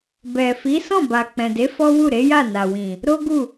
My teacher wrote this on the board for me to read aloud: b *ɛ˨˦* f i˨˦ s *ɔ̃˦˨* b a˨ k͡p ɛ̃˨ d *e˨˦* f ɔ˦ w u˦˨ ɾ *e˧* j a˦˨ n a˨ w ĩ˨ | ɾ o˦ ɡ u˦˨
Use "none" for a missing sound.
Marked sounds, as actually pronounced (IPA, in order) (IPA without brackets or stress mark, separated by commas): ɛ˨, ɔ̃˦˨, e˨˦, e˨˦